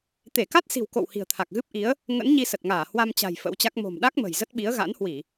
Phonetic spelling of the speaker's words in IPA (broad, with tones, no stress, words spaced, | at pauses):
t̪e˧˩ka˦˥t̚si̤˨˩w ko̰˧˨w hi̤˨˩ə̯t̪ʰa˨˩k̚ɣɨ˦˥p̚ʔi˨˦ə̯ | ŋə̰˧˥n ɲi˧sə˨˩t̚ŋaː˧˩ hwa˧mt͡ɕa̤˨˩j fə̰˧˥wt͡ɕa˦˥k̚ mo̤˨˩mɗa˦˥k̚ mə̤˨˩jzə˦˥t̚ɓi˨˦ə̯ ɣa̰˧˥nhwi˧˩˨